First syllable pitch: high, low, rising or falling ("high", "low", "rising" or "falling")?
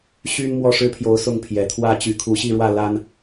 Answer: high